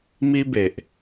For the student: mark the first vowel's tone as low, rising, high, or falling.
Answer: high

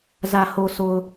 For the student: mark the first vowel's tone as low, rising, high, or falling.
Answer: low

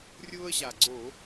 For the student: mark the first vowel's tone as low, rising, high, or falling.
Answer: high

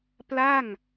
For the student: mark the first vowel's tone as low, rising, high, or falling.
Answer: falling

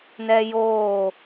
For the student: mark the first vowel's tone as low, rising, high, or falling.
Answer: high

